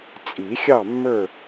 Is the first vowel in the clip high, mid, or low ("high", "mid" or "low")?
high